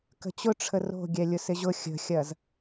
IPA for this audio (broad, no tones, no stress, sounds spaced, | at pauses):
k ə̤ t͡ɕ ʊ ʈ͡ʂʰ ə r o̤ ɡʲ ɛ lʲ ʊ s ɪ ʑ ʊ xʲ ə̤ xʲ ɐ z